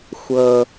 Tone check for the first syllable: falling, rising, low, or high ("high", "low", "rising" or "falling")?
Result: high